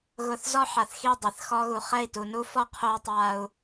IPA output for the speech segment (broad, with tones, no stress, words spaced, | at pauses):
ɣʊ˨θ zɔ˦ħa˨θxi˦˨ dˤe˨θxɔ˦ɣu˨ χɛ˦˨i̯tu˨nu˦ fɔ˦qʰo˦u̯ tˤa˦u̯